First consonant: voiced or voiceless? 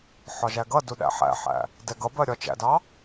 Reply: voiceless